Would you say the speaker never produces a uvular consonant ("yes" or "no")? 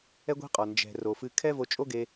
no